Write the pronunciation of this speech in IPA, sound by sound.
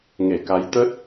ŋ e˧˩ k a˨˦ j t̪ ə˦˥ t̚

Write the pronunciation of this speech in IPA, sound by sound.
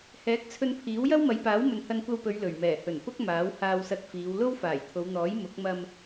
h ɛː˨˥ k̚ t͡sʰ ɵ˧ n pʰ iː˨˥ w j ɐ˥ w m ɐ˨˧ j p aː˨˥ w m ɵ˨ n h ɐ˧ n kʷ ɐ˧ w p ɵ˨˧ ɥ l ɵ˨˩ ɥ m ɛː˨˩ h ɵ˨˩ n p ʊ˥ k̚ m aː˨˥ w h aː˧ w s ɐ˧ t̚ f iː˨˧ w l o˥ w f aː˨˩ j t̪ʰ o˨˧ w n̪ ɔː˨˥ j m ʊ˨˥ k̚ m ɐ˧ m

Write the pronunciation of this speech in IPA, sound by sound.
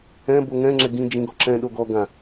ɛ̃ b o ŋ ɛ̃ ŋ͡ǁ ɛ ɡ ĩ d͡ʒ ĩ ɡ ɔ ǁ ɛ̃ ɗ o ɡ ɔ ɡ ã

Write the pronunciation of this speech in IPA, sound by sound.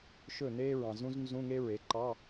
ʃ ɵ˥˩ n eː˥ ɹ ɑ̃˨ z ũ˥ z n z ũ˧˥˧ ŋ e˥ ɹ e˩˥ ǃ ɑ˧˥˧

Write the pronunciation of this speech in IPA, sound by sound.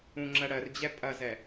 ũ ŋ͡ǁ ɜ ɽ ɜ r d͡ʑ ɛ pʼ ɐ z ɛ

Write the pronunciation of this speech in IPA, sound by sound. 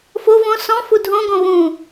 f o v õ s ɔ̃ f u dʱ õ ɡ õ β ũ

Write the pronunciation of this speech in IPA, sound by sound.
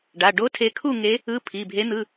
ɖ a˩˧˩ ɖ o˦˥ tʰ e˨˦ kʰ u˥˨ ŋ e˨˦ | ɯ˧˥˧ pʰ i˩˧˩ bʱ e˨˦ n̪ ɯ˩˧˩

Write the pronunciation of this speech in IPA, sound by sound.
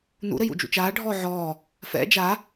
n ṵ ɾ ɘ j ṵ d͡ʒ ṵ t͡ʃ aː ɖʱ ɔː ʕ ɔː | f ɛ̰ d͡ʒ a

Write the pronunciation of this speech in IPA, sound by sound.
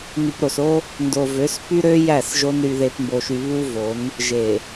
n y˨ p ɾ o˨ s o˦ | n d o˨ v ø˨˦ s p y˦ ɾ ø˦ j æ˦˨ s ʒ o˦ n ɾ y˦ ð e˦ p m b o˦ ʃ y˦ β u˦ v o˨˦ n | ʒ e˨

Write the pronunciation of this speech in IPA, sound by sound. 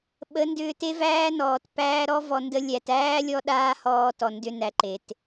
ɓ ə˨˦ n d ʏː˧ t e˦ v æː˦ n ɔː˨ t p æː˦ ɾ ɔ˦ v ɔ˧ n d ə˦ lʲ æ˨ t æː˦ lʲ ɔ˦ ɗ aː˦ h ɔː˧ t ɔ˨ n d ʏ˧ n æ˧ ǃ e˨ t

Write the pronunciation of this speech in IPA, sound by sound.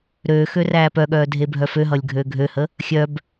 ɾ øː x ø r æː p œ ɠ œː dʱ e bʱ œ f ø ɦ ʌ lʲ ɡʱ øː ɡʱ ø h ə | xʲ œ b

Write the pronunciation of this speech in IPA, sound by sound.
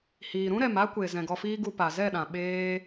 h iː˨ ɾ ũ˦ ɾ ɛ˨ m a˦ kʷ e˨ z ɛ̃˨ ɡ ɔ˧ f iː˦ ɡ u˧ p a˨ z ɛ˦˨ ɗ ã˨ ɓ eː˦

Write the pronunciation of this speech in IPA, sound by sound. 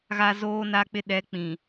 ɣ a˦ z oː˦ n a˦ k͡p ɪ˦ ɗ ɛ˨˦ k͡p ĩ˨

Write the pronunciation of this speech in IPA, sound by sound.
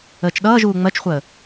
əː t͡ʃ ɗ ʌː ʒ uː ŋ͡m ɜ t͡ʃ χʷ əː

